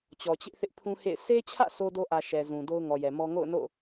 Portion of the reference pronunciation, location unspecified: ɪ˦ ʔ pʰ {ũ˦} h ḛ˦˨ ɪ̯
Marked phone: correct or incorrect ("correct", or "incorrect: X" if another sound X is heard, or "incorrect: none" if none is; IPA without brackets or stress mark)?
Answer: correct